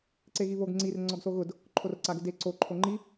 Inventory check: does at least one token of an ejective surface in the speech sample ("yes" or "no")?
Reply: no